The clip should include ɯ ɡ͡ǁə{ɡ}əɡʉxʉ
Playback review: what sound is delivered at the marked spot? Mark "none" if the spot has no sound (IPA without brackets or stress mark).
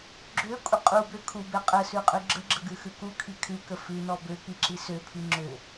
ɡ͡ǁ